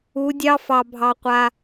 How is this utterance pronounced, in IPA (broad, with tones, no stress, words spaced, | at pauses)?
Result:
u˨˦dʲɑ˦fɑ˧bʱɑ˧ qʷa˧